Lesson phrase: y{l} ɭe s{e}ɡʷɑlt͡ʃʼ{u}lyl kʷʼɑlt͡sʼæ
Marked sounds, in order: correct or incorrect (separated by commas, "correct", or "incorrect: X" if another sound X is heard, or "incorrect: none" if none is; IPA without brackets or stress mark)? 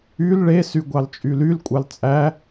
correct, incorrect: y, incorrect: y